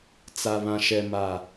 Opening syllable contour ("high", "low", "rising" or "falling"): low